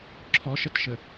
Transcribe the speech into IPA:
ǁʰ ɔ ʃ ə t ʃ ə

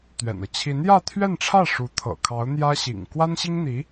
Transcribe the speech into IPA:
t̪ ɥ ɛ̰˨˩ n ɤ˦ t͡ɕʰ i˧˥ n j ä˥˧ t̪ʰ ɥ ɛ˥˧ n ʈ͡ʂʰ ä˥˩ ʂ u˧˥ t̪ʰ ɤ̰˨˩ kʰ ɑ˧˥ ʊ̯ n̪ j ä˥ ɕ ḭ˨˩ ŋ k w a˥ n ɕ i˥ ŋ n̪ i˧˥

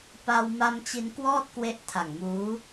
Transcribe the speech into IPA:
p a˧ w m a˧ m t͡ɕ i˧ n k w ɔː˥˩ t̚ k w e˦˥ ʔ tʰ a˨˩ ŋ m uː˦˥

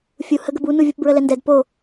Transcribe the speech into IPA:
fʲ u h ə ɡ ə b u n u vʲ u p b ɹ ə l ɛ n d ɛ d p o

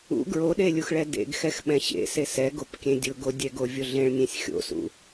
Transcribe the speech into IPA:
ṵ ɡ ɹ o ɗ e lʲ u x ɭ ɛ d ḛ ɡ x ɛ x ɓ ɛ̃ ɕ ḛ s e s ɛ ɡ o p kʲ ẽ dʲ ʊ ɡ o dʲ ɛ ɡ o vʲ o ɮ ẽ ɭ nʲ ẽ sʲ xʲ o̰ s ṵ

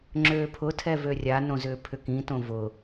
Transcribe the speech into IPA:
ŋ͡ǁ øː pʰ ʊ tʰ ɛ v ø rʲ a n õ z ʏː pʰ ʏ k ĩ t õ v ʊ

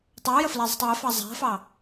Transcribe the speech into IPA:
tˤ ɑ ʊ̯ j ə f l ɛ zˤ ə̤ tˤ w ɪ f ɑ zˤ æ̤ f ɑ

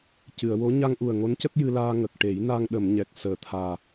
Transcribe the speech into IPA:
c ɨ˨˩˨ ə̯ w o˧˥ ɲ a˧ ŋ ʔ u˨˩ ə̯ ŋ o˧˥ n c ə˦˥ k̚ j ɨ˧ l aː˧ ŋ ə˨˩ k̚ ʈ e˨˩˦ j n a˧ ŋ ɗ ə˨˩˨ m ɲ ɛ˨˩ k̚ s əː˨˩ t̪ʰ aː˨˩

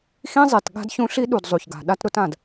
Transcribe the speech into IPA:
x ĩ˦ zˤ e˨ t ɠ a̤˦ d ç ũ˦ ɬ i˦ ɗ u˨ d zˤ u˨ ç ɡ a̤˨ ɗ a˦ t ɾ ʊ˦ t ã˨ d

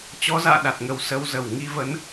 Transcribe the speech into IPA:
t͡ɕ ɔ˨˦ z a̰ː˧˨ ɗ a˨˩ t̚ ŋ ə˨˩ w s ə˧ w z ə˧˩ w ŋ i˧ v ə˨˦ n

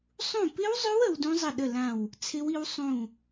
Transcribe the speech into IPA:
sˤ ũ˦˨ p ɪ˦˥ w zˤ ʏ˦˥ w ə˦˥ w d ũ˦˥ zˤ ə˦˨ ɗ ə˦˨ l ã˦˨ w | t͡sʰ ɪ˦˥ w i˦˥ w sˤ ũ˦˨

